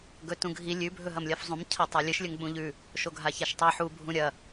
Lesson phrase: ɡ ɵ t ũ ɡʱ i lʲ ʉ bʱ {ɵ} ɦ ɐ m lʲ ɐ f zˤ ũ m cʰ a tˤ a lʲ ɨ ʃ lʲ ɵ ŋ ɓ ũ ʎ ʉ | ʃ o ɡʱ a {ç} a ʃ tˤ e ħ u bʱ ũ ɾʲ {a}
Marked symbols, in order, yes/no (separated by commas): yes, yes, no